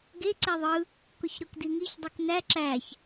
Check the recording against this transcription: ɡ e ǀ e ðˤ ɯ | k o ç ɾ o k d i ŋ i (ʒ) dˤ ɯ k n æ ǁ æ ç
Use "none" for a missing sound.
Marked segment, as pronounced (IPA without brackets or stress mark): ç